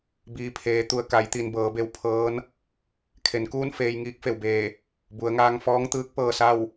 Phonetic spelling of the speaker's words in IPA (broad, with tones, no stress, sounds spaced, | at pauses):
b iː˩ pʰ eː˩˧ t̪ u˩ ə̯ k a˩˧ j t̪ i˩ n b ɤː˩˧ b e˧ w pʰ ɤː˧˥ n | kʰ e˩˧ n k uː˥˨ n f eː˧ j ŋ iː˧˥ k̚ f e˩ w b eː˧˩ | b u˩˧ ə̯ ŋ aː˧ ŋ f ɔː˧˥ ŋ t̪ ɯː˧˥ k̚ p ɤː˧ s a˥˨ w